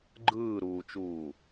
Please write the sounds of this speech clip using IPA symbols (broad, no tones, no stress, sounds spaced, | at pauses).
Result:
ɡ͡ǃ ɯː ɾ uː t͡ʃ uː